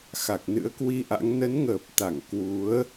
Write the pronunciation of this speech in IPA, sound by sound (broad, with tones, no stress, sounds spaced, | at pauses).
x a˨˩ k̚ n ɨ̰˧˥ ə̯ k w i˧ ʔ a̰˧˥ ŋ n ə˨˦ n ŋ əː˨˩ p̚ t̪ a˧˩ ŋ k w u˨˦ ə̯